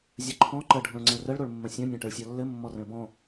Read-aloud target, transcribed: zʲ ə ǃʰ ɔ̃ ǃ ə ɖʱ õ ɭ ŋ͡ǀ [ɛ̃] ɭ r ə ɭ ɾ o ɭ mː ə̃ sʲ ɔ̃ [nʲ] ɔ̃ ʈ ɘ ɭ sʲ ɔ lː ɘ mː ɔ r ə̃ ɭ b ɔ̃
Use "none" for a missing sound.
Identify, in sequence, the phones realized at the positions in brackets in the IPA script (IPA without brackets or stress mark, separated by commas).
ə̃, nʲ